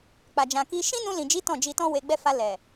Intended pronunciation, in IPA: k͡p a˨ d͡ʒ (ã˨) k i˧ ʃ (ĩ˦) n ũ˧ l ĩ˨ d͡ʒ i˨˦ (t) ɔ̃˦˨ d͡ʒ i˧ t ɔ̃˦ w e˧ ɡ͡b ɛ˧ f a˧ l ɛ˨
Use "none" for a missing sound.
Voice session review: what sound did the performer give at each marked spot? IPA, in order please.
ã˨, ĩ˦, t

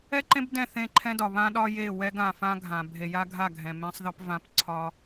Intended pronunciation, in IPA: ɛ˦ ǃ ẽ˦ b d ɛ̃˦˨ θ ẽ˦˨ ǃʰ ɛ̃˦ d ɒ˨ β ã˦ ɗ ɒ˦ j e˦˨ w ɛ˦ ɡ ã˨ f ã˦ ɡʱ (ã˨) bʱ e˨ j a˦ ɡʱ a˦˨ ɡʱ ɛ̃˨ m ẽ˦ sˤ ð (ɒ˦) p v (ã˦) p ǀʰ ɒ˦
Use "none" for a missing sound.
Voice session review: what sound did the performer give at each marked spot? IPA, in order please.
ã˨, ɒ˦, ã˦

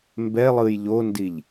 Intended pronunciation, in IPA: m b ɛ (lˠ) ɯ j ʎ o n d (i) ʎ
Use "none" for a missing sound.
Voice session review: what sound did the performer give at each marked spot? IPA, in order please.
lˠ, i

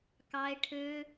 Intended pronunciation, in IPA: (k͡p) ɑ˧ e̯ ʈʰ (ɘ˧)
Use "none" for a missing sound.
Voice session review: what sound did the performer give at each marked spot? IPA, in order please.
k, ø˧

